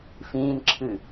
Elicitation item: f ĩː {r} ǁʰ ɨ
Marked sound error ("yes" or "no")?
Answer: yes